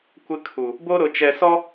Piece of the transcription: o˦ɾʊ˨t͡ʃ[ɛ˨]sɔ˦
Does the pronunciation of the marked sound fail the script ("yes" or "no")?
no